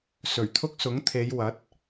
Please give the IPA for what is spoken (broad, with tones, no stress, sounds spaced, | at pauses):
s ɵ˨˩ ɥ t̪ʰ ʊ˥ k̚ s ʊ˨˥ ŋ t̪ʰ e˨˧ j w ɐ˨˥ t̚